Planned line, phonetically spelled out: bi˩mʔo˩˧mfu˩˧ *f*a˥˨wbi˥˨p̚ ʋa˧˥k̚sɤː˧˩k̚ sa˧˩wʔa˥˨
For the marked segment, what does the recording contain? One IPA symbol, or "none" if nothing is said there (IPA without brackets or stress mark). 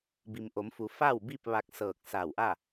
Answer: f